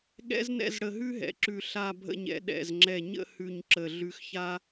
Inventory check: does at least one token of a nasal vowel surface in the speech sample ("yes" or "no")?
no